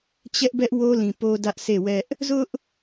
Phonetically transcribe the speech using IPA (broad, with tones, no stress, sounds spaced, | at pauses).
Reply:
t͡ɕ ɛ˦ ʔ b ɛ˦ ʔ w o˦ l ĩ˨ p o˦ d ä˦ ʔ s e˦˨ w ɛ˦ ʔ | z ʊ˦ ʔ